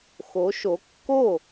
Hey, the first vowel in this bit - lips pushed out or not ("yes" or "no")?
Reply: yes